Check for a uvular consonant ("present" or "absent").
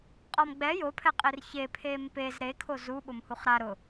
present